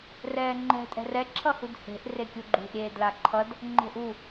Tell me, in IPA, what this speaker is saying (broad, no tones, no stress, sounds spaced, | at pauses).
r ɛː ŋ͡ǃ ɛ̤ tʼ ɛ̤ r ɛ ǁʰ ʌ h u d h e̤ ʔ r e kʲ u ɡ͡ǃ ṳ ʔ ɾʲ eː d l a ǃʰ ʌ d | ŋ͡ǃ e̤ ʔ u